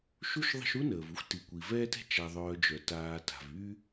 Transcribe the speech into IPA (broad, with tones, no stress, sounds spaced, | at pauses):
ʃ u˥ ʃ ðˤ ə̤˦ ʃ u˥ n əː˩ v u˥ xʷ t i˩ kʷ i˩ v ɛː˦ t ɛ̤˦ t͡ʃ a˨ ðˤ œː˨ d͡ʒ œ˩ t aː˨ t a̤˩ v yː˦